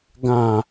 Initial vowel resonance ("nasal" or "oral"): nasal